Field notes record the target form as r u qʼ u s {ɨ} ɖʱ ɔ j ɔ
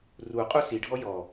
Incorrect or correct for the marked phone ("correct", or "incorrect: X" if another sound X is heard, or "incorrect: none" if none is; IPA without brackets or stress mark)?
incorrect: i